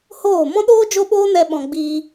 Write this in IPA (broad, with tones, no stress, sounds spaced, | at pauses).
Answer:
h oː˦˨ m ɔ̃˦ ɗ oː˦ d͡ʒ o˦ ɓ oː˦ n ɛ˧ ɓ ɔ̃˧ ɡ͡b iː˧